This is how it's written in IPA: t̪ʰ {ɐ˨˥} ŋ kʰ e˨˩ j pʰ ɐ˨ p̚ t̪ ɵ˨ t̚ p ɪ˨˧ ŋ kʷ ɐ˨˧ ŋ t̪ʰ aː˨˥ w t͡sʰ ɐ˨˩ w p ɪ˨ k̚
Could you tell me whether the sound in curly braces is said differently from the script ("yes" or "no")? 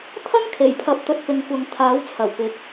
yes